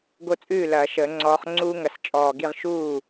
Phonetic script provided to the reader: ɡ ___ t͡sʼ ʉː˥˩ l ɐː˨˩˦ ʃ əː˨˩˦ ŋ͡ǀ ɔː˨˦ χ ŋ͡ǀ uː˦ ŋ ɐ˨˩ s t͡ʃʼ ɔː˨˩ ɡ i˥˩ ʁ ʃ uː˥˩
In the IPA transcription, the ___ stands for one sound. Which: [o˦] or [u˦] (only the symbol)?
o˦